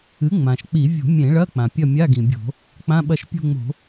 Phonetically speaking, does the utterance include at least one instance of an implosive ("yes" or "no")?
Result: yes